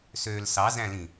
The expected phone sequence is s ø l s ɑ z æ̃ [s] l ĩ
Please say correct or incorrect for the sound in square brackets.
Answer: incorrect